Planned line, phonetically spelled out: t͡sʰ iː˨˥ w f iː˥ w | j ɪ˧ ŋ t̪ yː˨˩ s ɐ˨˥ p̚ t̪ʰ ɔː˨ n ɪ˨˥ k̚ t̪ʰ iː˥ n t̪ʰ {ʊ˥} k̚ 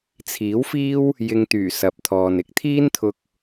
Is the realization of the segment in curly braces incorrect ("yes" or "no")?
yes